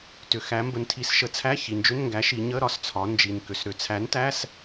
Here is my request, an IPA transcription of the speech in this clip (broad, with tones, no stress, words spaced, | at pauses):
tʏ˩xæ˩˧ mbə˩˧ntʰi˩˧s ʃə˩˧t͡sʰæ˧˥˧ çi˩nd͡ʒʏ˧˥˧nŋɡæ˨˥ ʃi˩˧ ɲə˧˥˧ ɾɒ˩st͡sʰɒ˩˧nd͡ʒi˩n kʏ˩sɾʏ˨˥ t͡sʰæ˨˥ntæ˧˥˧s